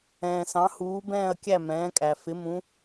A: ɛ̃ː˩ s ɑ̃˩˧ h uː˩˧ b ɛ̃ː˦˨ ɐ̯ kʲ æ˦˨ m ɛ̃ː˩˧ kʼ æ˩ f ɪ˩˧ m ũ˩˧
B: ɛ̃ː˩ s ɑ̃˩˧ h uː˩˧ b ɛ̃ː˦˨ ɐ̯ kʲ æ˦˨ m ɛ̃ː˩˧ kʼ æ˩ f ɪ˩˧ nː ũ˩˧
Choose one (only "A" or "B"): A